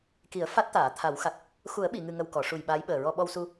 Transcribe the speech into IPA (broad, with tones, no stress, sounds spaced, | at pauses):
k i˨˩˦ ə̯ f a˦˥ t̚ t̪ aː˨˩˨ t̪ʰ a˨˩˦ w x a˨˩ k̚ | x u˨˩˦ ə̯ ɓ i˨˩˨ ŋ ɨ˨˩ ŋ ə˨˩ w k ɔ˨˩˦ ʂ u˨˩ j ɓ aː˧˥ j ɓ əː˨˩ ɹ ɔ˧ ɓ ɔ˧ w s u˧